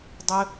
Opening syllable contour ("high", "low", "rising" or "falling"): high